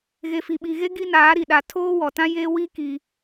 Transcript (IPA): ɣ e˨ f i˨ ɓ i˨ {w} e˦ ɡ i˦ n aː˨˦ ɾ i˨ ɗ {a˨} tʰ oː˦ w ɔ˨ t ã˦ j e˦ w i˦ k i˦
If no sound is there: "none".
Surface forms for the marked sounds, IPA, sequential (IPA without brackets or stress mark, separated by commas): ɣ, a˨